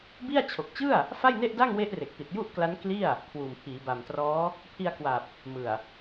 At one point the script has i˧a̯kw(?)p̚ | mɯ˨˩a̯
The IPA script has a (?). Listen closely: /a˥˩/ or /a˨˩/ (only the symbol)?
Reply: a˨˩